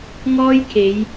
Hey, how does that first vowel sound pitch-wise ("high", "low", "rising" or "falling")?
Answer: high